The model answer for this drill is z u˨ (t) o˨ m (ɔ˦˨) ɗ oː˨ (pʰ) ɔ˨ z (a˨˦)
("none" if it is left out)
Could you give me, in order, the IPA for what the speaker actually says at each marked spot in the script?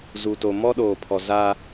t, ɔ˦, pʰ, a˦

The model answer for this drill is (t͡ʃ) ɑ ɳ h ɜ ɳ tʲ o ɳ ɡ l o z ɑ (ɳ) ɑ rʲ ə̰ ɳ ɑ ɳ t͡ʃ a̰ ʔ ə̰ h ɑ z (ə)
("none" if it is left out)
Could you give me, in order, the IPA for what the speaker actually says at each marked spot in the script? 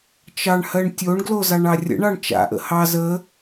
t͡ʃ, ɳ, ə

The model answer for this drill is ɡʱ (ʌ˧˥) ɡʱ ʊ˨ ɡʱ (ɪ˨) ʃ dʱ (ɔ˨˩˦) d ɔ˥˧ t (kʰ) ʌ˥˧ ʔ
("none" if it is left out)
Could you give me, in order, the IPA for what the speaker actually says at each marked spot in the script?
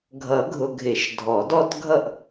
ʌ˨˩˦, ɪ˨˩˦, ɔ˨˩˦, ɡʱ

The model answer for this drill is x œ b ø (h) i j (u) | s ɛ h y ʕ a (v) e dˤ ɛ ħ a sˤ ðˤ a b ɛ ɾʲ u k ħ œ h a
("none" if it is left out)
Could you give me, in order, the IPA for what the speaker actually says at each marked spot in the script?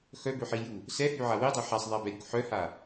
ħ, u, w

